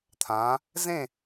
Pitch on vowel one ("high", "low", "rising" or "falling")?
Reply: rising